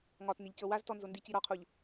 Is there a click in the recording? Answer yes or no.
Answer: no